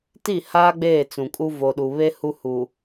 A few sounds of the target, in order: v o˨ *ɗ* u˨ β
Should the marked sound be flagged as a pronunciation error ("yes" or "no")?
no